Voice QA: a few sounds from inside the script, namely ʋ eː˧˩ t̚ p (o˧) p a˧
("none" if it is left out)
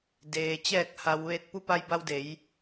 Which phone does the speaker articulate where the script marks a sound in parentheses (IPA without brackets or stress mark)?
u˧